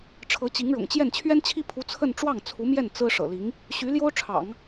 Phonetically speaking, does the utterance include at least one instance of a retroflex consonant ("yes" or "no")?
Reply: yes